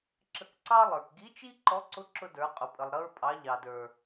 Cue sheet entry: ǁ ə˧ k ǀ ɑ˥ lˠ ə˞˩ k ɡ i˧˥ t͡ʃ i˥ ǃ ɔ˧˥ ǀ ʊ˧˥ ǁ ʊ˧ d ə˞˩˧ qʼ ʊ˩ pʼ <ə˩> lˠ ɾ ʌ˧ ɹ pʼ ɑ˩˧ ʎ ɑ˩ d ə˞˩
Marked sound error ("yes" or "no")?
no